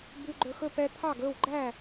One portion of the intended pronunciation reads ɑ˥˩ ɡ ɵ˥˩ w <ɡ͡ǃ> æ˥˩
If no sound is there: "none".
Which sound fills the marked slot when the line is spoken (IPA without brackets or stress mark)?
ɡ͡ǃ